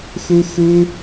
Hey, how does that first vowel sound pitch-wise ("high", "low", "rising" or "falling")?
high